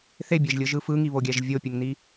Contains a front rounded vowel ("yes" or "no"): no